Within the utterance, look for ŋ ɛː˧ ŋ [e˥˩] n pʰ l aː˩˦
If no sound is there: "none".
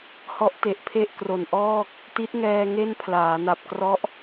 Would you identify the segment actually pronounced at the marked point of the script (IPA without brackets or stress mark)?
e˥˩